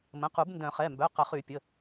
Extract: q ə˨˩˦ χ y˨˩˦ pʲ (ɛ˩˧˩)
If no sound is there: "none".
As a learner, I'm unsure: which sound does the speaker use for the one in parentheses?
ə˩˧˩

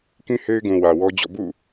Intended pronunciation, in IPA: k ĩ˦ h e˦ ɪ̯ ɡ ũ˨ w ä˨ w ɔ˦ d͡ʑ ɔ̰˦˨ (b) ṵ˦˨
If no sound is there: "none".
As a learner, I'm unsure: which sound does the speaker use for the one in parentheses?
b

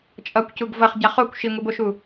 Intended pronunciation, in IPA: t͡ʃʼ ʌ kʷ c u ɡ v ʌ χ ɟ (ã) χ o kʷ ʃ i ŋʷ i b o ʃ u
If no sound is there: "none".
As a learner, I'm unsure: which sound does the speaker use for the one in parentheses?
a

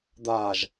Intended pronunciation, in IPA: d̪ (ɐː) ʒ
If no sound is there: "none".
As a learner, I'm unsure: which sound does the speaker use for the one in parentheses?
aː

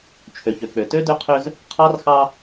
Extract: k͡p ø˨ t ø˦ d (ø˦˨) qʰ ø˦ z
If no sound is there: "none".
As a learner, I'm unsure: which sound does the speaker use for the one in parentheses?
ø˦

